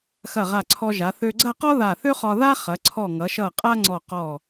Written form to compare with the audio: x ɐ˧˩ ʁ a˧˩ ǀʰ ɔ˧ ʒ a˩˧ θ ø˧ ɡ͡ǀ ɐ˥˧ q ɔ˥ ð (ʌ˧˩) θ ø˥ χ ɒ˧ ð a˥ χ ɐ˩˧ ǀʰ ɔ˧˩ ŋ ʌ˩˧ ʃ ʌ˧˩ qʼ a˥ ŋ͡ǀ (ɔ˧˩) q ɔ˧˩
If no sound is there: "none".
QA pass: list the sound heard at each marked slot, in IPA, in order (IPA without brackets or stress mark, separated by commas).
a˧˩, ɔ˧˩